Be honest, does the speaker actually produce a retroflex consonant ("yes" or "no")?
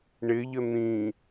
yes